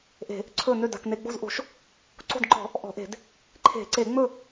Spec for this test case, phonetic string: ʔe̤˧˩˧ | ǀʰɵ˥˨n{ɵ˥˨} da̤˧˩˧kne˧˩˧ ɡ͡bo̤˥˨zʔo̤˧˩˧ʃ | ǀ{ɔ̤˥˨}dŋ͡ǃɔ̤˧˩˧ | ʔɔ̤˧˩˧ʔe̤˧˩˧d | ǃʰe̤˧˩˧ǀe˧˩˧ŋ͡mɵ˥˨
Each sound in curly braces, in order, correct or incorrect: incorrect, incorrect

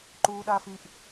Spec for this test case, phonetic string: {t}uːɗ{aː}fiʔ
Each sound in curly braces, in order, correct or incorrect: incorrect, correct

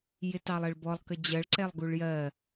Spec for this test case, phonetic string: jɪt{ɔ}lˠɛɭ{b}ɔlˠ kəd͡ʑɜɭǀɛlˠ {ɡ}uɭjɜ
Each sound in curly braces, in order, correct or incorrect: incorrect, correct, correct

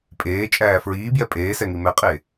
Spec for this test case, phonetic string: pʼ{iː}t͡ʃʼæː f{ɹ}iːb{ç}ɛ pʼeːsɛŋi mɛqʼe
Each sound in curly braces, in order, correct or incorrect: incorrect, correct, incorrect

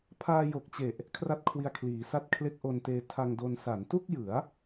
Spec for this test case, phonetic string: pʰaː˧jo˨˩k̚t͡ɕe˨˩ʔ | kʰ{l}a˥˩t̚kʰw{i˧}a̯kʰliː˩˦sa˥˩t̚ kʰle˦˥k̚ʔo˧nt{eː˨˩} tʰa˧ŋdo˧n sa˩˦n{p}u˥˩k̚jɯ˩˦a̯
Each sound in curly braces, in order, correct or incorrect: incorrect, correct, incorrect, incorrect

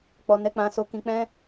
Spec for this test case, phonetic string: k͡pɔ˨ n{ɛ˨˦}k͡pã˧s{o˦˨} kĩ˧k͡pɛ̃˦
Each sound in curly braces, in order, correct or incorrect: correct, incorrect

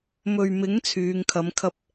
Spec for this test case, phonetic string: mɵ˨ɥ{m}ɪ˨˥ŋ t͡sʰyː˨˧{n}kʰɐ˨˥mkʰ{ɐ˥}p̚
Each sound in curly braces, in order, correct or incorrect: correct, incorrect, correct

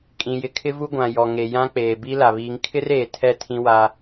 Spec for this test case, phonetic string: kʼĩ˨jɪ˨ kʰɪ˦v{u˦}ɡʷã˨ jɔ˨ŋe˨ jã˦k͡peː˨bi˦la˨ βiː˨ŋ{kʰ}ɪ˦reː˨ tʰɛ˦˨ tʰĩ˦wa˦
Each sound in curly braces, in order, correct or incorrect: correct, correct

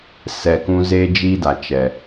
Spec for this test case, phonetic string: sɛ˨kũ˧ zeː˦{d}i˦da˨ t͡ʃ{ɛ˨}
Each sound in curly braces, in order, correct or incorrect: incorrect, correct

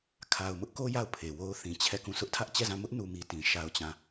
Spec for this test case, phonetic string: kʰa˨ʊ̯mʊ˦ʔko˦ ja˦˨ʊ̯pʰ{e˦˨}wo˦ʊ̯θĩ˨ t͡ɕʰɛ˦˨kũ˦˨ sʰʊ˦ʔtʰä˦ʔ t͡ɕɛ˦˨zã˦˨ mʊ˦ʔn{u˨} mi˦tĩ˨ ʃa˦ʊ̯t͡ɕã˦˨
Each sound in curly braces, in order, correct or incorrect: incorrect, correct

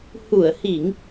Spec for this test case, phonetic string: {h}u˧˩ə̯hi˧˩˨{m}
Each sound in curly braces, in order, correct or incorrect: correct, incorrect

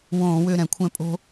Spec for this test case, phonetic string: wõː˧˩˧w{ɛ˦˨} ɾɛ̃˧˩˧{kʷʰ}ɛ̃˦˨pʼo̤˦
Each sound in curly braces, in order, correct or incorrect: incorrect, correct

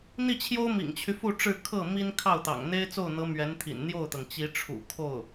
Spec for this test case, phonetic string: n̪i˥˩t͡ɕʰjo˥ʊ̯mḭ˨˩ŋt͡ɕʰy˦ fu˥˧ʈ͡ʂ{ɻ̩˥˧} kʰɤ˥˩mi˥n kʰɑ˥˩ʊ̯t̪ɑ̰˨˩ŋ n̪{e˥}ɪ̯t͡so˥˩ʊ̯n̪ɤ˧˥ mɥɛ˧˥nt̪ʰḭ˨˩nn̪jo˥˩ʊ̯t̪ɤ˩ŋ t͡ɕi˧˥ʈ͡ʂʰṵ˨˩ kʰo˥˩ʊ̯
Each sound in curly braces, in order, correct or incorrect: correct, correct

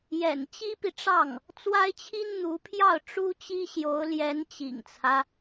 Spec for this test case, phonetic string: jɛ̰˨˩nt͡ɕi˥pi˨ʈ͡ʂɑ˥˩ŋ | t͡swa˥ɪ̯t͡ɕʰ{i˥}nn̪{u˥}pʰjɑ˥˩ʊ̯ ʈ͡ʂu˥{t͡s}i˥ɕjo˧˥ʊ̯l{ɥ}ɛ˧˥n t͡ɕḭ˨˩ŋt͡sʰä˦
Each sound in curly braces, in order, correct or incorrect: correct, incorrect, incorrect, incorrect

